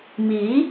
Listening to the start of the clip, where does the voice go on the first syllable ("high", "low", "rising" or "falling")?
rising